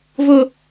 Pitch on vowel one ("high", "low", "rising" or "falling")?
high